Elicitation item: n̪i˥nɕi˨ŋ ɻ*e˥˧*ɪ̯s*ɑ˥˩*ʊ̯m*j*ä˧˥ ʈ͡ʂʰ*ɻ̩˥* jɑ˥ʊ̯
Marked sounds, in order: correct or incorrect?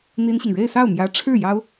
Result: correct, correct, correct, incorrect: ɻ̩˥˩

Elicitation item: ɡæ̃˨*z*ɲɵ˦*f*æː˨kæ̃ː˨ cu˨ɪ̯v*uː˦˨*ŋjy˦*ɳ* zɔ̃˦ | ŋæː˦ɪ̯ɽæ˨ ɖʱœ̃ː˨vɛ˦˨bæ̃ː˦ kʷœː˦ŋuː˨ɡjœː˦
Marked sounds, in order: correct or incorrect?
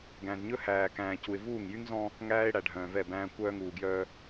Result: correct, incorrect: h, correct, incorrect: ŋ

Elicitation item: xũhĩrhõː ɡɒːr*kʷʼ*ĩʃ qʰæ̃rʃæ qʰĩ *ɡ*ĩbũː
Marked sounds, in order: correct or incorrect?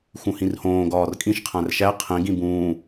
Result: incorrect: kʼ, correct

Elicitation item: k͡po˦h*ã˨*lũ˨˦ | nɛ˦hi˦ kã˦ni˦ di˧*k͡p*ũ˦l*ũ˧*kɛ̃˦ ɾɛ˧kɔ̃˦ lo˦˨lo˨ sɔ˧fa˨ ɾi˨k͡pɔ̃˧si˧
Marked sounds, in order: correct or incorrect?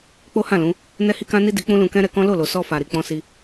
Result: incorrect: ã˦˨, correct, correct

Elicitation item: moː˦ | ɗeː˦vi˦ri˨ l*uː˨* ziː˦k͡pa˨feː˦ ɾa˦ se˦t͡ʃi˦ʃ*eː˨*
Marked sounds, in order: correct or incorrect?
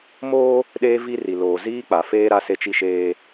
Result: incorrect: oː˨, incorrect: eː˦

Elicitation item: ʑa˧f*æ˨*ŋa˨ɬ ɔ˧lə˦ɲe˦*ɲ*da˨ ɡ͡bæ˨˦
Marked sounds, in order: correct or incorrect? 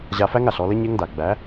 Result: incorrect: æ˦, incorrect: ŋ

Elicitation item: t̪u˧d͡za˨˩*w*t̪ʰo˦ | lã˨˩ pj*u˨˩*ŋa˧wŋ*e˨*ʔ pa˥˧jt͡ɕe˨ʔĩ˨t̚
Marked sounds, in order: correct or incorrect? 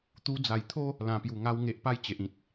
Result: incorrect: j, correct, correct

